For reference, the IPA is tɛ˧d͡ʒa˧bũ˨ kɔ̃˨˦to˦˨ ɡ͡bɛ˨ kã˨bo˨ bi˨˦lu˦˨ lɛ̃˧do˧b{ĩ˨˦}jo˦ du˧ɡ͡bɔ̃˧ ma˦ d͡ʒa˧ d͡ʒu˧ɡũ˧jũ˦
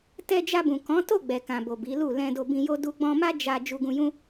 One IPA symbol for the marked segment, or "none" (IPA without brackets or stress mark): ĩ˧